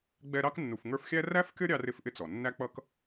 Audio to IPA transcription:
ɡ͡b ɛ˦ ɾ ɑ˥ k nː u˨ f ŋ ə˞˦ f xʲ æ˥ r æ˥ f kʲ ʌ˥ ɾʲ ɑ˦ r ɪ˦ f ʔ ɪ˦ t͡s ɔ˩ nː æ˥ k͡p ʌ˥ k

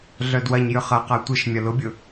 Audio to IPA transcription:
ɮ œ d w ɐ ɲ j ʏ χ ɐ q a tʷ ɪ ʃ mʲ ɐ l ʊ bʲ ʊ

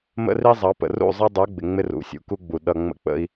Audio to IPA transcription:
m ə̰˦ r i˦ zˤ ɑ˨˦ p ə̰˨ r ṵ˦˨ zˤ ɛ˦ dˤ ə˞˨˦ ɡ͡b ɪ˨ ŋ͡m ɪ˦ r ṵ˨˦ sʲ ṵ˨ k u˦ ɡ͡b u˨ ɗ ʌ˨ ŋ͡m ə̰˦ k͡p ə̰˦ i̯

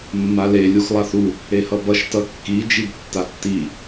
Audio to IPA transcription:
mː a l e lʲ u x lˠ a θ u | e h ʌ b ʌ ʃ t ʌ kː i d͡ʒ i b tː a tː i

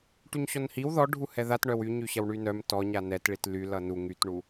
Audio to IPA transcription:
ʈ y ɲ ɕ ɔ n h i w ð ɔ ɖʱ u h ɛ ð a t ɳ œ w y ɲ y ɕ ɐ w ɳ y n œ m t ɔ ɲ a n ɛ t ɭ i t l y l ʌ n u ŋ y t ɳ u

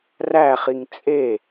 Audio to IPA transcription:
r æ χ i ŋ t͡sʼ e

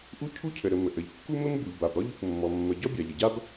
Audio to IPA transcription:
ʔ u˥ cʰ u˥ cʰ ə˩ ɾ ə˩ m ə˩ ʔ ə˩ ʎ kː u˥ m ɘ˥ m b u˩ ʎ b a˩ b ɾ ɔ˥ ʎ u˩ k mː ɔ˩ mː ə˩ ɟ ɔ˥ bʲ a˩ ʎ ə˩ ɟ a˥ b

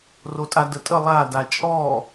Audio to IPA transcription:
r o tʼ a d ə tʼ ə lˠ a d a t͡ʃʼ ɔ

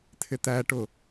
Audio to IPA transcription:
t̪ʰ ɪ t̪ æ ʈ ʊ

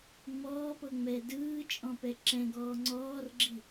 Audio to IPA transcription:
ŋ͡m ɔː p ɤ ŋ͡m ɛː d ɯː t͡ʃʼ ɔ̃ p ɛ ǁ ɛ̃ ɡ ɔː ŋ͡ǀ ɔː r ɡ͡ǁ i

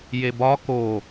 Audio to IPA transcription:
j e b ɒ k o

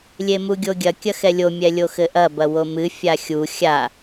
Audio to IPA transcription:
lʲ e m u ɡʲ o ɡʲ ɐ kʲ ɐ x ɛ lʲ o mʲ ɛ lʲ o x ɘ ʔ ɐ b ɐ w o m ɨ fʲ a xʲ u xʲ a

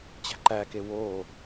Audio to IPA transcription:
t͡ɕ æ̤ ǃ æ k e w o

